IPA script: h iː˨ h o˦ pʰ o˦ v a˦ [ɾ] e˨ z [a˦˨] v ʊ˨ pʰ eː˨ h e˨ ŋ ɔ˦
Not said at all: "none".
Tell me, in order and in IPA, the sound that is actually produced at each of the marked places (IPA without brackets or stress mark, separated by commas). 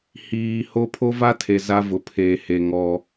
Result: tʰ, a˦